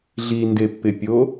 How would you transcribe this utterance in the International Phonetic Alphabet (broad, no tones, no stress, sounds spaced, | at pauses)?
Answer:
ɮ i n d e pː ɪ pʲ o